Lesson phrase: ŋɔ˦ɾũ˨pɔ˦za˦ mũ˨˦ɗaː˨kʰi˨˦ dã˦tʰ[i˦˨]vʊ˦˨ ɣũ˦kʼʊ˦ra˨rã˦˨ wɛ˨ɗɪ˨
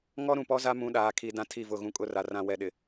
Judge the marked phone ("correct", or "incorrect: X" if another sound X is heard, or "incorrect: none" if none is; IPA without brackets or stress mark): correct